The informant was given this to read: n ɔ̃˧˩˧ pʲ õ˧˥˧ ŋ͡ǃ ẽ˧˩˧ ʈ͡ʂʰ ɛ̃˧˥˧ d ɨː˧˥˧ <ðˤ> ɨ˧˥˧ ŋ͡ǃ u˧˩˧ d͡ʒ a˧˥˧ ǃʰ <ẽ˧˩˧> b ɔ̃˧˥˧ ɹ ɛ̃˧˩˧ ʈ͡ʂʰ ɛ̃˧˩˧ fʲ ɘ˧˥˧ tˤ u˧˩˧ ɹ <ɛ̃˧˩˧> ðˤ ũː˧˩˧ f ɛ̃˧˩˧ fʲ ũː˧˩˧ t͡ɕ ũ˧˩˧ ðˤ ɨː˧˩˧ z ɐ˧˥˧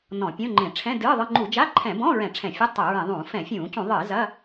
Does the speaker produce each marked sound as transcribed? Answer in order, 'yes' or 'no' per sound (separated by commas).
yes, no, yes